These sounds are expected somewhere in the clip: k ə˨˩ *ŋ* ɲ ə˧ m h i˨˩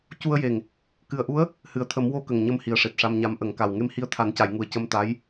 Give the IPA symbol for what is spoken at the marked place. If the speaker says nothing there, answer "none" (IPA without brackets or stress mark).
ŋ